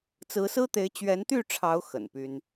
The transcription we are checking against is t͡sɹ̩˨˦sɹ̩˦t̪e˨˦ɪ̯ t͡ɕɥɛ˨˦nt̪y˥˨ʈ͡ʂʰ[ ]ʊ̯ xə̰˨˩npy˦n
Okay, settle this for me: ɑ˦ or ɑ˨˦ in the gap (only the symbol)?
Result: ɑ˨˦